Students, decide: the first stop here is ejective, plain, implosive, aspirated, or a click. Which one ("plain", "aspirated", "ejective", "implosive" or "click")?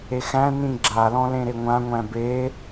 click